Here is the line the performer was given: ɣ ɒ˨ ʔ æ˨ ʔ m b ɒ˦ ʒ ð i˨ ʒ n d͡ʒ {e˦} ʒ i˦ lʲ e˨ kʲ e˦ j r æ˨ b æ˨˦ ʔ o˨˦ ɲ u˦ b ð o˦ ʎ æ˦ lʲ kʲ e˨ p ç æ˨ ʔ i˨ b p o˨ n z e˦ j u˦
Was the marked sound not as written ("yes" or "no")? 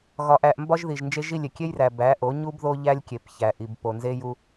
no